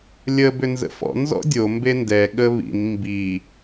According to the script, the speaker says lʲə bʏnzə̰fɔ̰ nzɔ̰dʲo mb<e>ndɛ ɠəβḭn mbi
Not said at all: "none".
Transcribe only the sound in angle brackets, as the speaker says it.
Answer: e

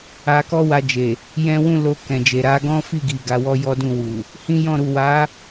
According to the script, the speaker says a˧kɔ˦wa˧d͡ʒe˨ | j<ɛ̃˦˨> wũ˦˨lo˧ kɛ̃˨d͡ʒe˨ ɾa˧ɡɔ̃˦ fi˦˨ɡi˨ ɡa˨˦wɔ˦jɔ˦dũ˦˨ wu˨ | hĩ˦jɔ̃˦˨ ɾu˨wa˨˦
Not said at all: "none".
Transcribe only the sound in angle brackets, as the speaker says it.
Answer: ɛ̃˦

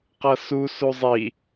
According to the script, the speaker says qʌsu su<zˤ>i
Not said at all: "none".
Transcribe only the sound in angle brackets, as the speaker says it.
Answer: zˤ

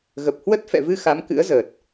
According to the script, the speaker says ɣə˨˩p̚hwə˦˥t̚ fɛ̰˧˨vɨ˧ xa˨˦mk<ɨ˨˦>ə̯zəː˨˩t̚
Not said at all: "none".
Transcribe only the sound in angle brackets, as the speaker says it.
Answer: ɨ̰˧˥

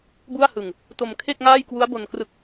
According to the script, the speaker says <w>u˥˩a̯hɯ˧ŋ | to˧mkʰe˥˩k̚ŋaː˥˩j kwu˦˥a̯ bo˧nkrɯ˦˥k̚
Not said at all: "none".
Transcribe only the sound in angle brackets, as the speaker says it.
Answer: b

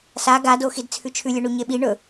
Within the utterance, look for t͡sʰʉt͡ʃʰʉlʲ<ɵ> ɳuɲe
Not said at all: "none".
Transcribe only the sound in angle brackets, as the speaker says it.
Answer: ɵ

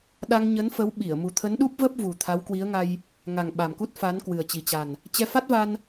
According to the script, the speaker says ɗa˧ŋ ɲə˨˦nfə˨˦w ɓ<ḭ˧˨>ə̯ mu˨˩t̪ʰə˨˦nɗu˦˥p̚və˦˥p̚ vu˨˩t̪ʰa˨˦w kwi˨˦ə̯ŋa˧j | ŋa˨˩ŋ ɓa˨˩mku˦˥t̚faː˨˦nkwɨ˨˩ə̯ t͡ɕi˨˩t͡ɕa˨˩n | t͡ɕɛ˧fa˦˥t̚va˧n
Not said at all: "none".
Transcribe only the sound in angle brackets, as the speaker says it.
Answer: i˧˩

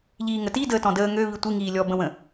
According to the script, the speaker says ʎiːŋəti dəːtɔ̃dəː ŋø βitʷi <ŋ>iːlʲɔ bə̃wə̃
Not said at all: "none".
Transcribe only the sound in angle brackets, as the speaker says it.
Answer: ŋ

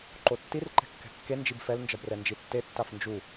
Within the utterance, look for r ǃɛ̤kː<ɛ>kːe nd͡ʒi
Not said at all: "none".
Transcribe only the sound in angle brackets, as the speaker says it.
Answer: ɛ̤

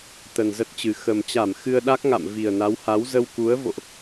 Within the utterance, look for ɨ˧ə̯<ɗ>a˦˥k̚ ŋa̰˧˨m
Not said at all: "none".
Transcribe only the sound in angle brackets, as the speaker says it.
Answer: ɗ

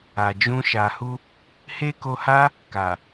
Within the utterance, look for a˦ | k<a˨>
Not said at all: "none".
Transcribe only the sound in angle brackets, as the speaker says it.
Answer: a˨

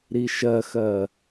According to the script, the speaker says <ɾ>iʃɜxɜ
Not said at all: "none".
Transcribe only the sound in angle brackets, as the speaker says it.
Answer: ɾ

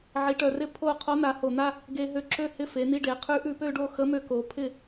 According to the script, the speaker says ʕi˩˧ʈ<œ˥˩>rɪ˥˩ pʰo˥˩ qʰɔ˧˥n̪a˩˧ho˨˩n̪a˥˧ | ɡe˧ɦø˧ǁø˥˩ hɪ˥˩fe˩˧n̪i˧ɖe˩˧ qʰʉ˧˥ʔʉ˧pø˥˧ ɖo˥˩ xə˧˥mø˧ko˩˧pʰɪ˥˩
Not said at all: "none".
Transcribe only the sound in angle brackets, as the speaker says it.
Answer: œ˨˩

